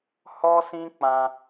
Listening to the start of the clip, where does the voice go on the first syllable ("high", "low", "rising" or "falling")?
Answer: high